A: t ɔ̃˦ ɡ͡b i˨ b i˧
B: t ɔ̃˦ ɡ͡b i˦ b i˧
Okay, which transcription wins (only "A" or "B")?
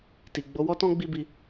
B